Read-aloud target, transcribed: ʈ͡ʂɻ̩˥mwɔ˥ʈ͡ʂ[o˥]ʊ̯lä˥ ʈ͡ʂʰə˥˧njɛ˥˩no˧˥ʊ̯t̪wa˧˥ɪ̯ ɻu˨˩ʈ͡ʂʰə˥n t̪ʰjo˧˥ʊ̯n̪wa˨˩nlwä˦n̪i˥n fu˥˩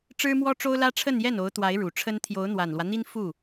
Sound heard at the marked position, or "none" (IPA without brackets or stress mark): o˥